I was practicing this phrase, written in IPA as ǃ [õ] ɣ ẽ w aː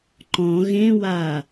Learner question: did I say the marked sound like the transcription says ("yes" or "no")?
no